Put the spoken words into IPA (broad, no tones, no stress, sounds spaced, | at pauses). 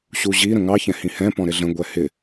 ɕ u ʑ i ɾ ə̃ ŋ ɑ ç ɛ̃ h ĩ h ɛ̃ p ɔ̃ ɾ ɪ ɮ ə̃ ɡʷ ɛ h ɪ